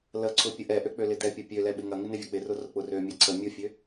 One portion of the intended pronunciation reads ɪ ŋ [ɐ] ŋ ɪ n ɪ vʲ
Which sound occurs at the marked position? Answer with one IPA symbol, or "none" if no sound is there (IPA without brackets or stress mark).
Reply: ɐ